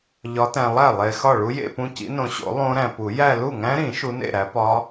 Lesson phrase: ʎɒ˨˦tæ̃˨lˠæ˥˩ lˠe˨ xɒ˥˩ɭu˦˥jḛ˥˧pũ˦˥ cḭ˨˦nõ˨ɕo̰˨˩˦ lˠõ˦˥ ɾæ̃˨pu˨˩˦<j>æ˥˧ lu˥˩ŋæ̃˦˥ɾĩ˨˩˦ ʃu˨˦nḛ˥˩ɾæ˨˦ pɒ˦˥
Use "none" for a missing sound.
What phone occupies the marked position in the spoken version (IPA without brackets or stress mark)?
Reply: j